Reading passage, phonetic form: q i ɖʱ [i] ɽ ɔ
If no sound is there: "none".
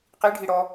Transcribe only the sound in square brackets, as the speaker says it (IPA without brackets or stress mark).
i